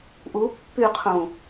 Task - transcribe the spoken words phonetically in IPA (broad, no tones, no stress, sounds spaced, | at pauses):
ʔ u pː y qʰ ũ